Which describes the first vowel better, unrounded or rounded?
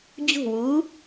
rounded